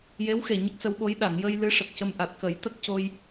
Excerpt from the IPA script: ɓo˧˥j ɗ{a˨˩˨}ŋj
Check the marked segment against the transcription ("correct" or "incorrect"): correct